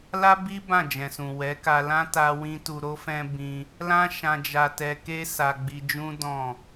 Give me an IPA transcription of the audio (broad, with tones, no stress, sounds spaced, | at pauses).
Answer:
l a˦ b i˦ b ã˦˨ d͡ʒ ɛ̃˨ s ũ˨ w ɛ˨˦ k a˧ l ã˦ t a˦ w ĩ˦ t u˧ ɾ o˦ f ɛ̃˦ b ĩ˧ | l ã˦ ʃ ã˧ d͡ʒ a˧ t ɛ˧ k e˦ s a˧ ɡ͡b i˧ d͡ʒ ũ˦ d ɔ̃˦˨